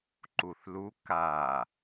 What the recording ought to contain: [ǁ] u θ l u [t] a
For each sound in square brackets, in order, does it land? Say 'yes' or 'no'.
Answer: no, no

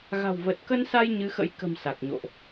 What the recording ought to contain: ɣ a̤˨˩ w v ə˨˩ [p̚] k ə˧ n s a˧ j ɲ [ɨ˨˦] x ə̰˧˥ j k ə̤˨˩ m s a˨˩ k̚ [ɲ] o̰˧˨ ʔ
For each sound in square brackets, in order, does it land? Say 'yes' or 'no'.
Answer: no, yes, yes

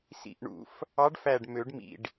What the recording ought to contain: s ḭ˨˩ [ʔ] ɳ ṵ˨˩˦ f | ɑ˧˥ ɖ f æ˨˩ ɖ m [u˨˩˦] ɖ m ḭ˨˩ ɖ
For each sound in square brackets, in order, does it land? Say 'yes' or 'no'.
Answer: yes, no

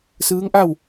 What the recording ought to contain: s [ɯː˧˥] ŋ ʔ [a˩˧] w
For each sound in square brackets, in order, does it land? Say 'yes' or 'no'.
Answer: yes, no

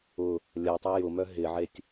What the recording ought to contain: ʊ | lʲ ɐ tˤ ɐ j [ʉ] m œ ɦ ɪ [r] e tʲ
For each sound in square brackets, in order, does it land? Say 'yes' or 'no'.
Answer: no, no

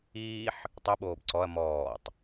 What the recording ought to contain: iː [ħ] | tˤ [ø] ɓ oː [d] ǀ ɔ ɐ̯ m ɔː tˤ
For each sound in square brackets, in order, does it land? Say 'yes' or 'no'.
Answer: yes, no, no

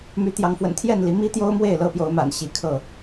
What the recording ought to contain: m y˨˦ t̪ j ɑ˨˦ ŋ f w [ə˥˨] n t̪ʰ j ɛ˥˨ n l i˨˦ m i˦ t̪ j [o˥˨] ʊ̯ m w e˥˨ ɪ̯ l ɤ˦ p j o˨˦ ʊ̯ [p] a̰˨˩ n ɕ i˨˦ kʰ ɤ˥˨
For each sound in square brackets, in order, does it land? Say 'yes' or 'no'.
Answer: no, no, no

